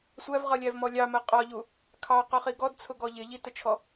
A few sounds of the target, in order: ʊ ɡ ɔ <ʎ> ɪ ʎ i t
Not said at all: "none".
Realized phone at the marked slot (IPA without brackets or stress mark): ʎ